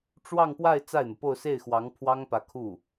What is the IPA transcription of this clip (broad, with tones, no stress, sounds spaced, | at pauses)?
ʈ͡ʂ w ɑ˥˧ ŋ p w a˥˧ ɪ̯ t͡s a˥˩ ɪ̯ n̪ ɤ˩ p o˥˧ ʊ̯ s e˥˩ ɪ̯ x w ɑ˧˥ ŋ pʰ w ɑ˥ ŋ p ä˧˥ kʰ u˥˩